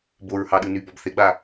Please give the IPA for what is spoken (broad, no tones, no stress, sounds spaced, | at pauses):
b o ɹ h ɑ ɗ ɯ n y b ɔ b θ e ɡ͡b a